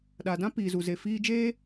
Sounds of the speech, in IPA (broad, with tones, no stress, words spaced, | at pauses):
ɗa˨dã˦ piː˨zu˨ze˨ fiː˧d͡ʒeː˦